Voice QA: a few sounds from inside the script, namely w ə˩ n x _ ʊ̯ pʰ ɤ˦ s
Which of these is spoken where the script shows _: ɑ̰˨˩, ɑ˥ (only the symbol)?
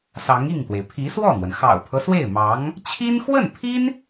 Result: ɑ̰˨˩